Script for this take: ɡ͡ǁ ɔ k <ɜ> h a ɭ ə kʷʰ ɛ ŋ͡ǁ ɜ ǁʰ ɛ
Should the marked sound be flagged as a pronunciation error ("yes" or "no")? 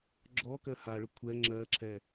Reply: no